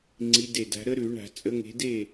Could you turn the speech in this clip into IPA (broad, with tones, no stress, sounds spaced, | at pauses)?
ŋ͡ǀ i˨˦ d e˧˩ d a̤˨˦ ɾ ə˦˥ ɾ ʉ˧˩˧ ɳ a̤˧˩˧ t͡sʼ ə˨˦ ŋ e̤˨˦ d e˥˩